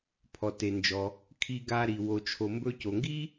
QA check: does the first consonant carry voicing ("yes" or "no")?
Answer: no